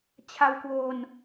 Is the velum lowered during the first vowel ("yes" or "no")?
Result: no